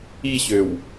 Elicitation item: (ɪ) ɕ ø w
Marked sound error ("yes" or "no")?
yes